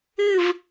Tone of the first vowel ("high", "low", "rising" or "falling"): falling